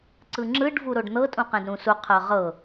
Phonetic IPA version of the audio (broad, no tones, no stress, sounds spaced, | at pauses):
ǀ ɯ ŋ͡ǁ ɯ ɖ v u ɾ o ɖ n̪ ɤ tʼ ũ q ɛ̃ d ɾ ũ s u qʰ ɤ ʁ ɤ